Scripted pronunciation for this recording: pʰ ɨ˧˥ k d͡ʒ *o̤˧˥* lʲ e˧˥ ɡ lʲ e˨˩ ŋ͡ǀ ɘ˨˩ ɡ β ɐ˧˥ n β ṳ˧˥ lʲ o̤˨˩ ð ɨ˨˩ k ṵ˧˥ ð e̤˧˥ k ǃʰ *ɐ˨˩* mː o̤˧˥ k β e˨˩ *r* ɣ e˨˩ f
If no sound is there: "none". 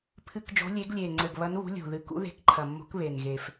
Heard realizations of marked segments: o̤˧˥, ɐ˨˩, n

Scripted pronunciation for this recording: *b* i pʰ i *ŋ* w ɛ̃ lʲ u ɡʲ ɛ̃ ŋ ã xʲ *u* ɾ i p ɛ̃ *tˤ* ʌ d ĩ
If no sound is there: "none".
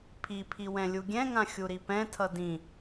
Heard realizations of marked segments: pʰ, none, u, tʰ

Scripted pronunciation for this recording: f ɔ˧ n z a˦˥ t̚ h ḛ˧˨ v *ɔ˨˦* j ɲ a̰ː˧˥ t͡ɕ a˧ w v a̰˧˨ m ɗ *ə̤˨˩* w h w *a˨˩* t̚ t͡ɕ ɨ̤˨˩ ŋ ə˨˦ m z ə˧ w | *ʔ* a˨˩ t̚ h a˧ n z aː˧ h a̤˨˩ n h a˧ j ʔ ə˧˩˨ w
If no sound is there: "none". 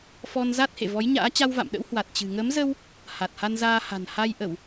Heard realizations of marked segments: ɔ˨˦, ə̰˧˥, a˨˩, h

